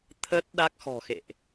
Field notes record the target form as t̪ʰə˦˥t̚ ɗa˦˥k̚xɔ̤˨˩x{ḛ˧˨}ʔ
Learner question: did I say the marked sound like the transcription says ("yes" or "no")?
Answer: yes